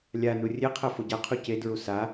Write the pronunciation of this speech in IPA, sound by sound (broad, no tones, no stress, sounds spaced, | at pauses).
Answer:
lʲ a n u rʲ e qʰ ɛ f o ɟ a qʰ u c e d ɹ u s a